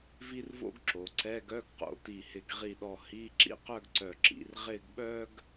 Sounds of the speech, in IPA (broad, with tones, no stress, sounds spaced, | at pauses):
v i˥ r v o̰˥ ɡ ǁ o˩˧ ǀ ɛ˧˥˧ ɡ œ˧˥˧ ɡ q o̰˧˩ t i˧˩ h ɪ˧˩ ɡ ʁ i˧˩ ɗ ɔ˧˩ h i˧˥˧ ǁ ḭ˥ q œ˥˧ ɡ ǀ œ˧˩ ǁ ḭ˩˧ r ʁ ɪ˥˧ ɡ ɓ œ˥ ɡ